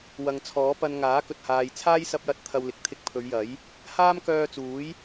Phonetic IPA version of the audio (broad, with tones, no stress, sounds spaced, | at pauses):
w ɐ˨ ŋ t͡sʰ ɔː˨˥ p ɐ˧ n ŋ aː˨˥ k ɵ˨ t̚ h aː˨ j t͡sʰ aː˥ j s ɐ˧ p̚ j ɐ˧ t̚ t̪ʰ ɐ˧ w l ɪ˨ k̚ t̪ʰ ɪ˧ k̚ pʰ ɵ˨˧ ɥ j ɐ˨˥ j | h aː˥ m k œː˧ t͡s uː˨˥ j